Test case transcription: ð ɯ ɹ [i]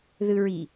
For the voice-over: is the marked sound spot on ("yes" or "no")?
yes